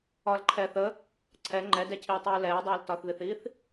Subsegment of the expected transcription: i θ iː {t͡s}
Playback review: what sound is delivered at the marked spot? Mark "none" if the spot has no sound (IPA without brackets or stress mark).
θ